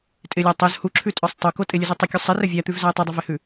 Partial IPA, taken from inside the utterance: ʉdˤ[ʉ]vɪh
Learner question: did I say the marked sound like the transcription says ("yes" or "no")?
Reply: no